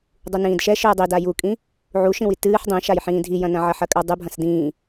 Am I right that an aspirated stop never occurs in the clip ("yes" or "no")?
yes